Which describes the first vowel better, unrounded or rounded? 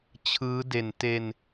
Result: unrounded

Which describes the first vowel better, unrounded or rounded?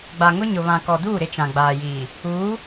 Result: unrounded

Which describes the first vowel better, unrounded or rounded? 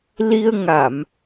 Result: unrounded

